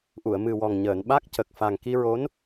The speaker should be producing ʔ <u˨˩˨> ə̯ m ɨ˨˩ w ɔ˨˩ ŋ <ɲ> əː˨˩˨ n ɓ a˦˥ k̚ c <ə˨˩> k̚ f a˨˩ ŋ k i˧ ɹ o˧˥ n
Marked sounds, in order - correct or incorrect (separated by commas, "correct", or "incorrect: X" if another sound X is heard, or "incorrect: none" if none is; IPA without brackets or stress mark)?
correct, correct, correct